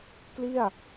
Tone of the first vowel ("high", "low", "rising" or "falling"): falling